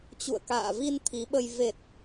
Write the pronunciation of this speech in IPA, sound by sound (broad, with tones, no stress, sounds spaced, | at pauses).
t͡ɕ ṵ˧˨ ə̯ k a̰ː˧˨ v i˧ n t̪ʰ i˨˦ ɓ ə˧ j v e˨˩ t̚